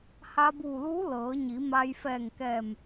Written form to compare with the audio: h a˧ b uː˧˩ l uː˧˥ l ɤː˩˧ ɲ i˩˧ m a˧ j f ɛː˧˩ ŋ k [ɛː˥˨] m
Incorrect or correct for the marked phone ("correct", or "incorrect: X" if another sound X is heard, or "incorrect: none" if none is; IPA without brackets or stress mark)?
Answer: incorrect: ɛː˧˩